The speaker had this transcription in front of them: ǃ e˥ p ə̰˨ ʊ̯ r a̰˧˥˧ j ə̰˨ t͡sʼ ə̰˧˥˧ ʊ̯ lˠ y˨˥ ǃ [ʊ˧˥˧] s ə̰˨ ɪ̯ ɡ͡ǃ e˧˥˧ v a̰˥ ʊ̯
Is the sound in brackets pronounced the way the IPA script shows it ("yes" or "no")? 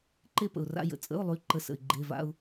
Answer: no